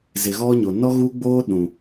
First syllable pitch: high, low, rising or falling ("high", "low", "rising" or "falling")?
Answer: low